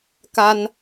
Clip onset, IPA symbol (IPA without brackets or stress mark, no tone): k